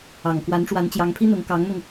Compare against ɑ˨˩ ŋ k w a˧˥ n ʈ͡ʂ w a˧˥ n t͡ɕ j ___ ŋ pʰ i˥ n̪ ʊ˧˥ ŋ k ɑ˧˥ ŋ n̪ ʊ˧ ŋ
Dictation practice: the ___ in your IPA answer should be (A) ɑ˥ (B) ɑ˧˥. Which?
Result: B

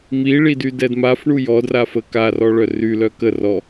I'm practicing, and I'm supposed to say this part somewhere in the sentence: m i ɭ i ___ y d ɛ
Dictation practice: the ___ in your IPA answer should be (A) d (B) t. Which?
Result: A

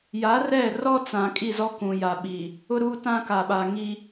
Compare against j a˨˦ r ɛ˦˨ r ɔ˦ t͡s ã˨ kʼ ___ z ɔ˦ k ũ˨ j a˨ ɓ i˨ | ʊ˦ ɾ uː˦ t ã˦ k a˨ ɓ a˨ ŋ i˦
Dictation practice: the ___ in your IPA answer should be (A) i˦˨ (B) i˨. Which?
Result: A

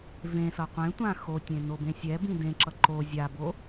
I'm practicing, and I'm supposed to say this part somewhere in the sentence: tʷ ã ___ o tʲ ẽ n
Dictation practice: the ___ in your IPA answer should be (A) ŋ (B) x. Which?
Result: B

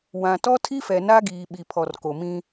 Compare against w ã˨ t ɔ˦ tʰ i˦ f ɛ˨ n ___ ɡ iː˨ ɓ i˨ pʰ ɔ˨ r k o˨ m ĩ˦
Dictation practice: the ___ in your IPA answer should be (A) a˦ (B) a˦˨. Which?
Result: A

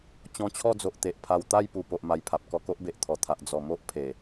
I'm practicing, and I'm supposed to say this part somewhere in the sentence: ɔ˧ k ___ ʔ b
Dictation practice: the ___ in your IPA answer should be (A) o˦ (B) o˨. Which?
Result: A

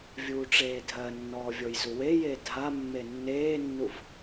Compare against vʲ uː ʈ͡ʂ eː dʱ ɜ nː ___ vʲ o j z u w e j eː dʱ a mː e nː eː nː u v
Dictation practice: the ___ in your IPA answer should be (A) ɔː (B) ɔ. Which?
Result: A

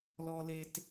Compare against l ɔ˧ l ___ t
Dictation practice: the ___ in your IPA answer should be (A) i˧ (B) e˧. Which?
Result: B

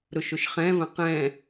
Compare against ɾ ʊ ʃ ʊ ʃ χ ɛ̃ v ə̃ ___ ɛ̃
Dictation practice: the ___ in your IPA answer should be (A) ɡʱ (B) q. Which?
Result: B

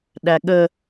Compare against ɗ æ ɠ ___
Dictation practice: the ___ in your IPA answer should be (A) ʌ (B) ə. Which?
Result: B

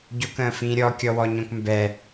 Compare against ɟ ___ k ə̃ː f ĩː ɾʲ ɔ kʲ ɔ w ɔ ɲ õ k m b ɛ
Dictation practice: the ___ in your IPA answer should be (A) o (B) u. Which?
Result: A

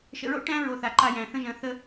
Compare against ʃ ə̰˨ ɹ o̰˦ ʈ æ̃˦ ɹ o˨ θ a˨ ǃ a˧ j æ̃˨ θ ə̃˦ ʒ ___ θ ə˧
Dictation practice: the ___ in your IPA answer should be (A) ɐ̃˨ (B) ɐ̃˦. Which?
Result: A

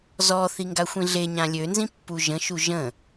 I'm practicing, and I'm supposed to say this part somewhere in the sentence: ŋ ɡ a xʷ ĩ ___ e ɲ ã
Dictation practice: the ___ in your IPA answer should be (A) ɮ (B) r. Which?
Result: A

